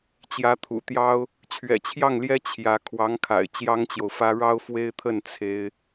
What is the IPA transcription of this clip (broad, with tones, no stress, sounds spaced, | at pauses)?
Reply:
t͡ɕ j ä˧˥ t̪ʰ ṵ˨˩ t̪ j ɑ˥ ʊ̯ | t͡ɕʰ ɥ ɛ̰˨˩ t͡ɕʰ j ɑ˥˩ ŋ l j ɛ˥ t͡ɕʰ j ä˧˥ kʰ w ɑ˧˥ ŋ kʰ a̰˨˩ ɪ̯ t͡ɕ j ɑ˥ ŋ t͡ɕ j o˨ ʊ̯ f ä˥ ɻ ɑ˥ ʊ̯ f w e˥ ɪ̯ t̪ʰ ə˥˩ n t͡sʰ e˥ ɪ̯